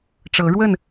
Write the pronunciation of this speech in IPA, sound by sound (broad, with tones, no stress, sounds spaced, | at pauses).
ʈ͡ʂ ɤ˨˦ ɻ w ə˥˨ n